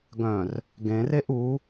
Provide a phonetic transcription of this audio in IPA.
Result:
ɡœ̃r | ɡẽreʔ u

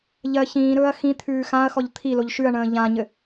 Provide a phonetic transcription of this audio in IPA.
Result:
ʎɜ çĩːɾɵːɐ̯ xĩ t̪ʰʉːxãɐ̯xɔʎ t̪ʰiloʎ ʃʉɐ̯ɳə̃ː ʎãɲɘ

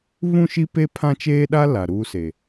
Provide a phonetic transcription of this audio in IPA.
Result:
βũ˦˨ʃi˦pe˦ pʰã˦t͡ʃeː˦ɗa˦ la˨ɾuː˦ se˨

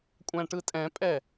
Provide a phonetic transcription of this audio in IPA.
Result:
kʷʼæ̃ʈɯtʼɛ̃pʼɛ

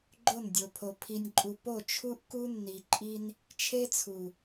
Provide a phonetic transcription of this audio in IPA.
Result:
ɡ͡ǃo˦˨ndʲo˨pʰo˨ pʰi˨nʲǃʼu˨ po˦˨ t͡ʃʰu˦ʔku˦nːi˨ǃʼi˦n | t͡ʃʰe˦t͡sʰu˨

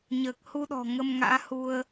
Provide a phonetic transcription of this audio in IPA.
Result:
ɲəː˨˩k̚hu˧ɗɔ̤˨˩ ŋə˧m ŋa̰ː˧˥hu˧ə̯

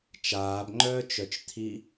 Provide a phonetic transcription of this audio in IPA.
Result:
t͡ʃaːbŋ͡ǃœːt͡ʃœt͡ʃt̪ʰi

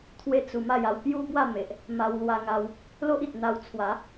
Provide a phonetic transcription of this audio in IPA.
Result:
t̪ʰwe˥˧t͡su˧ ma˥˧ja˧w pju˦bwa˥˧ me˨ʔ | ma˧wlwa˧ŋa˧w | lo˦ʔi˨t̚ n̪a˧wt͡sʰwa˨˦

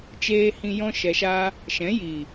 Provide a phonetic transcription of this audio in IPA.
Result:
t͡ʃeː˧hĩ˧ jɔ̃˦ʃɛ˧ʃaː˦ | ʃɛ̃˨˦jiː˨

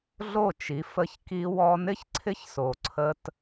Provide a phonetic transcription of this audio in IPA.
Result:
ɮo˦˨t͡ʃi˨˦ fə˧çki˧wɔ˧ nɪ˦çǀʰɪ˦çso˨ ǀʰə˧t

